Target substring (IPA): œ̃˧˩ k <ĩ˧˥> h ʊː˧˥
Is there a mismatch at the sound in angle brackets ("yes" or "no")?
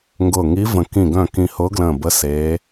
yes